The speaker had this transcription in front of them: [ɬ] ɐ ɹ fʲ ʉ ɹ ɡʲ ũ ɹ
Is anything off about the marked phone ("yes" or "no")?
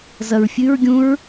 yes